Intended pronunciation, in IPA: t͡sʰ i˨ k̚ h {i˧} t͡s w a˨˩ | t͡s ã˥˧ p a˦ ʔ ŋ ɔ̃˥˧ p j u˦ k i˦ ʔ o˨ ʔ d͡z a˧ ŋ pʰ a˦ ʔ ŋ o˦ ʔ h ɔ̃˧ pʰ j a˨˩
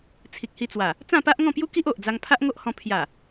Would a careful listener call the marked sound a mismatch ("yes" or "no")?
no